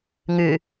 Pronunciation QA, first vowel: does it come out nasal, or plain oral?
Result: oral